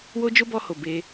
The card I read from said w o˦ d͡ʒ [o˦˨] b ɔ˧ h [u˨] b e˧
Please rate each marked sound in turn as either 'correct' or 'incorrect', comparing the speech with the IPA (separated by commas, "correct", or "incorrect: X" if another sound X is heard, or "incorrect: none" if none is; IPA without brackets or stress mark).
incorrect: o˦, incorrect: o˨